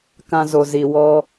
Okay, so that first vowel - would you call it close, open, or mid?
open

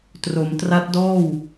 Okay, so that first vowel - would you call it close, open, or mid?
mid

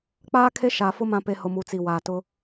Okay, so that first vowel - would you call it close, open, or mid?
open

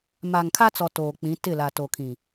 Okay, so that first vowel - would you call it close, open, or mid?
open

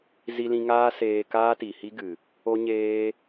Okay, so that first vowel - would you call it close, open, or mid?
close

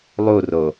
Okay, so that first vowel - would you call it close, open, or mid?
close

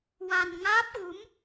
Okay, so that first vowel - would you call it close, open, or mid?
open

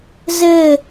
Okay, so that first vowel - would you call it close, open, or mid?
mid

